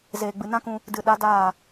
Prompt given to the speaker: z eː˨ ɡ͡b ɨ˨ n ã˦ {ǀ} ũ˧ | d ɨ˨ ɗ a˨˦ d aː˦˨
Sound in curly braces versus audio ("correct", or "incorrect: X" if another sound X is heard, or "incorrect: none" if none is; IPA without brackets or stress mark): incorrect: k